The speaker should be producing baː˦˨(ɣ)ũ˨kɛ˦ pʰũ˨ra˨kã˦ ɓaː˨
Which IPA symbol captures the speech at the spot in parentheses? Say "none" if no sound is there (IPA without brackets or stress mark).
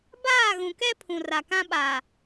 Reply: ɣ